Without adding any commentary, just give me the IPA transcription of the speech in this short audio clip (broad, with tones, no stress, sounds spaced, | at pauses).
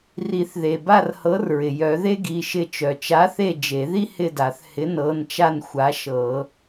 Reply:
r i˨˩˦ θ ð e˩ b a˦˨ r h ɤ˨˥ r ɹ ɪ˩ j œ˨˩˦ ð e˥ ɡ i˩˧˩ ʃ ɪ˦˨ t͡ʃ œ˩ t͡ʃ a˨˥ θ e˦˨ d͡ʒ e˨˩˦ ð i˥ h ɪ˦˨ d a˨˩˦ θ h ɪ˨˥ n ɤ˩˧˩ n t͡ʃ a˦˨ n xʷ a˨˥ ʃ ɤ˨˩˦